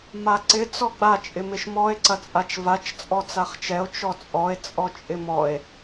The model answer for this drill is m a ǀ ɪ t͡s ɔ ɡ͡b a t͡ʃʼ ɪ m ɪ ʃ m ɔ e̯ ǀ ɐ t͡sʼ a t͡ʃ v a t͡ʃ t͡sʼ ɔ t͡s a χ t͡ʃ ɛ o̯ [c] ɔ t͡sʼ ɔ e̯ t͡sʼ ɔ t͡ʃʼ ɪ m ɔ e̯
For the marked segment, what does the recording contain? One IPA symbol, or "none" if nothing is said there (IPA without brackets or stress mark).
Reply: t͡ʃ